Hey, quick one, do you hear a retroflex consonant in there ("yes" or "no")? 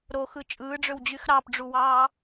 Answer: yes